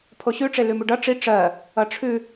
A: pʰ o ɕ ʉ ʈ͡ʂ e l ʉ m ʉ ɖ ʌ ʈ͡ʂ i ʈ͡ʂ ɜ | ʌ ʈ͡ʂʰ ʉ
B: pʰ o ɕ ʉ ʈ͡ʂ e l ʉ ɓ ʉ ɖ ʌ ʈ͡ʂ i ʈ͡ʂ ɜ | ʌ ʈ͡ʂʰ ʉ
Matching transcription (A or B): A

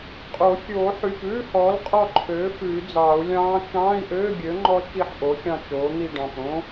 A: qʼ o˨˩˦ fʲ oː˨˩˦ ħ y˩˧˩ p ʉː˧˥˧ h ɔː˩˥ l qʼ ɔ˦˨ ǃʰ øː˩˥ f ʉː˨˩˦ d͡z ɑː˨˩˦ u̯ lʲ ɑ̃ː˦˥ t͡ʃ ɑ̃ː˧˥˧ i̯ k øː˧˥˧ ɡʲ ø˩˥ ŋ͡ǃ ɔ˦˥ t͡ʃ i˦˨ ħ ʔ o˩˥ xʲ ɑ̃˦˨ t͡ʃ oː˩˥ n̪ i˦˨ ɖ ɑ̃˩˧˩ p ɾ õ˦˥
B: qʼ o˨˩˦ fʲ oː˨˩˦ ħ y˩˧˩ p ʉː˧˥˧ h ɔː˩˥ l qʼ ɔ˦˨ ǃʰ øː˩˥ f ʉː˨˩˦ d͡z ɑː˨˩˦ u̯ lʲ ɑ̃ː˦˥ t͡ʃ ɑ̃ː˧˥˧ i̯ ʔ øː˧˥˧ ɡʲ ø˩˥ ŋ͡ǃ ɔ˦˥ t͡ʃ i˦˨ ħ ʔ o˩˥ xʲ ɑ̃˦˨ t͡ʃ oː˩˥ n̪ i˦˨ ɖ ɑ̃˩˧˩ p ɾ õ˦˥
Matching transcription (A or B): B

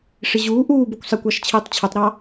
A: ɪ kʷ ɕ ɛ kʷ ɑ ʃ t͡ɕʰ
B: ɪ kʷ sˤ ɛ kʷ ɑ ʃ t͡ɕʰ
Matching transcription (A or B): B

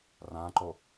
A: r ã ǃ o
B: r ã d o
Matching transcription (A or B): A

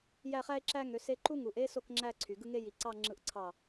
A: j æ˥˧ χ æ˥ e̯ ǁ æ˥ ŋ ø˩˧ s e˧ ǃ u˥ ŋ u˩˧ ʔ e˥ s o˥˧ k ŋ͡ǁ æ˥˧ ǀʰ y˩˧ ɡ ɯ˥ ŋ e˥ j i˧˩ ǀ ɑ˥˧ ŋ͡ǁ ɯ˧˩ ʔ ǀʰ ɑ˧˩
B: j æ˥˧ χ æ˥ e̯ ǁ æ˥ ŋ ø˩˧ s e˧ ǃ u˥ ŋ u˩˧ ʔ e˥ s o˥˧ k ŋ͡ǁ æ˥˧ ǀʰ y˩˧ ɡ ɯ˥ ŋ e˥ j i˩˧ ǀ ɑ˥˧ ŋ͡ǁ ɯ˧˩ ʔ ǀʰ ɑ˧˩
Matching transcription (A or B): B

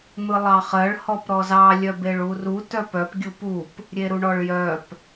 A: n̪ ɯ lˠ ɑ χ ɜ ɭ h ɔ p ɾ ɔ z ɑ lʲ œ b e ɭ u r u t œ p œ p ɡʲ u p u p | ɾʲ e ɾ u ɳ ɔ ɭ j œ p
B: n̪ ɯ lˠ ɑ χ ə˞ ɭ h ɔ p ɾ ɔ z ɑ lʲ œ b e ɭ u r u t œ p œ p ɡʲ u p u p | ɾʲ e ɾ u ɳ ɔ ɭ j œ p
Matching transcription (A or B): A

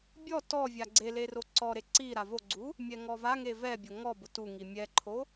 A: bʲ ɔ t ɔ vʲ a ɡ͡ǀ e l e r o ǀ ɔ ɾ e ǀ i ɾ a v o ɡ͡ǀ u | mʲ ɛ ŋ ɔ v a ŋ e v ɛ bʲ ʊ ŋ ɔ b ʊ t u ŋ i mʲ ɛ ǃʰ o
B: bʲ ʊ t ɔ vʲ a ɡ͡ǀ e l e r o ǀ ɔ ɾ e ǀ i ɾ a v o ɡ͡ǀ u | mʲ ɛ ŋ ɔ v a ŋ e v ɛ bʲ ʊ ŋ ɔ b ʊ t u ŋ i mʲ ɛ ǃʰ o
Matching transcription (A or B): A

